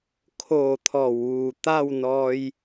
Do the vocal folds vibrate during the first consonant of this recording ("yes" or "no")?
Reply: no